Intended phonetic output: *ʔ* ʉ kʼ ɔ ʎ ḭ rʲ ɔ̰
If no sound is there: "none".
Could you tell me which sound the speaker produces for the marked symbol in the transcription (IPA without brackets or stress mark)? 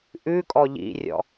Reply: ʔ